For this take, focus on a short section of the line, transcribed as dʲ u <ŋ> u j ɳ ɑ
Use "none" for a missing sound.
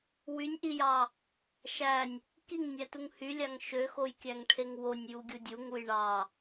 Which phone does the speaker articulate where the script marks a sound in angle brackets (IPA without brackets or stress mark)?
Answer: ŋ